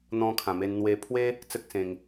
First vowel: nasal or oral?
nasal